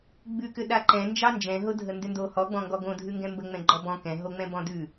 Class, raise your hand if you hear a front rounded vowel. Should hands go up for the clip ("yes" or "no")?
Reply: yes